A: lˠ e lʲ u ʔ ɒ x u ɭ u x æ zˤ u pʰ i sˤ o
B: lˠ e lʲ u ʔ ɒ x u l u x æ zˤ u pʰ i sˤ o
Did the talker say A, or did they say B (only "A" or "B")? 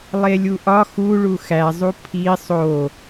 A